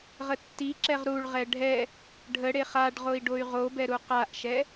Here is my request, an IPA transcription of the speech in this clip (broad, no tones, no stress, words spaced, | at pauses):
ʁətːiǁɛʁ ɾuɭʁɛ ɖʱɛ | ɖʱə ɽeχaɖʁoi̯ ɖoy̯ʁobɛ ɾuqaʔʃɛ